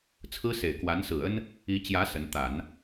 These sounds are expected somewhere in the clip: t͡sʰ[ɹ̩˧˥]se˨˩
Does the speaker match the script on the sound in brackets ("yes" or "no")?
no